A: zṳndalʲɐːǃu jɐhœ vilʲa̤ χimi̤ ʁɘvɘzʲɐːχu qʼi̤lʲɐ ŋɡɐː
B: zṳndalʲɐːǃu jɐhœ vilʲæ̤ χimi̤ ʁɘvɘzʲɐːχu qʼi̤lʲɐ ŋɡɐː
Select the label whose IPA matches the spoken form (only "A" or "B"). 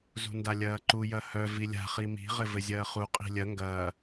A